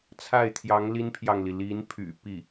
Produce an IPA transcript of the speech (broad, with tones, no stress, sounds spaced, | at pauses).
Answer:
t͡sʰ a˥˩ ɪ̯ t̪ʰ j ɑ˧˥ ŋ l i˥ n pʰ j ɑ˨ ŋ l i˩ l i˧˥ n pʰ y̰˨˩ p i˥˩